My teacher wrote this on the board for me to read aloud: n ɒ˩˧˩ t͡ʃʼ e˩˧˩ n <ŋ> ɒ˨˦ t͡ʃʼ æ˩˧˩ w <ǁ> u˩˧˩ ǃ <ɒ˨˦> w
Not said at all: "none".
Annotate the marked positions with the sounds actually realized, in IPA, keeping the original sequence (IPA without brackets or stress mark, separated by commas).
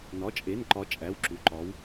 ǃ, ǁ, ɒ˨˦